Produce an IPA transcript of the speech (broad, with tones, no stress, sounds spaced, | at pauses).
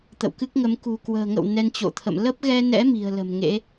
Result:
t̪ ə̰˧˨ w k ɨ˦˥ k̚ ŋ ə˨˦ m k ṳ˨˩ k w ə̤ː˨˩ ŋ ə̰˧˨ w n ɛ˧ n t͡ɕ o̰˧˨ t̪ʰ ə̰˧˨ m l ə˦˥ p̚ ɣ ɛ˧ n ɛ̰˧˥ m i̤˨˩ ə̯ l ə̤˨˩ m ŋ ḛ˧˥